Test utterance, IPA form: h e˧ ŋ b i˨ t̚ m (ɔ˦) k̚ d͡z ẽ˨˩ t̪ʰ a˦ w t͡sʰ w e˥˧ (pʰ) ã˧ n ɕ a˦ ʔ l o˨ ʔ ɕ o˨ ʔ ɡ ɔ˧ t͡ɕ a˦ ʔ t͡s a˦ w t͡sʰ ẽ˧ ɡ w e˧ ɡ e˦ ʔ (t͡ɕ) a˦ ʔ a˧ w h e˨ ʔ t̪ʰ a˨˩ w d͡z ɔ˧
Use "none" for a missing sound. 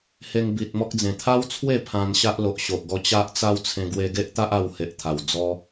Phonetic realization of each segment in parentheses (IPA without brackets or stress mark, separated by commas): ɔ˦, pʰ, t̪